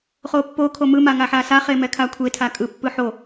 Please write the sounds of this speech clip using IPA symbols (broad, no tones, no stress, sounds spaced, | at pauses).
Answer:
χ o pː o kʰ o m ɯ m a ŋ a ħ a s a χ e m ɛ kʰ a kʷʰ e tʰ a kʼ ɯ pː ɯ ħ o